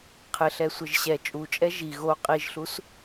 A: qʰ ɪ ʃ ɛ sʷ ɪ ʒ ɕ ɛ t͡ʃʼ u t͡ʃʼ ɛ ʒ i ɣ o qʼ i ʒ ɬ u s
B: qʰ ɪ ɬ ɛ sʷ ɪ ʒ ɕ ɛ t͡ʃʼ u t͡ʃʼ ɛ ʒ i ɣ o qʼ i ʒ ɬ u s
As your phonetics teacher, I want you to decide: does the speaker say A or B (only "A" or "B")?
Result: B